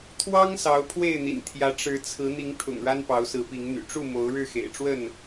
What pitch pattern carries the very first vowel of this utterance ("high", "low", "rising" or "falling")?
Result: high